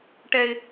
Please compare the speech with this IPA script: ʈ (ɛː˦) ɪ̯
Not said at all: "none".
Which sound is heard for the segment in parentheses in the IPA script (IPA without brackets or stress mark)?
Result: ɛ˦